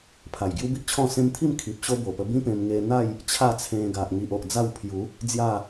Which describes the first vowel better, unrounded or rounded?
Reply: unrounded